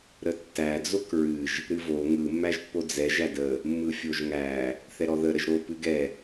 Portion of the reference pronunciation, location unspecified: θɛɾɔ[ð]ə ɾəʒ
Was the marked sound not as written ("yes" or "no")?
no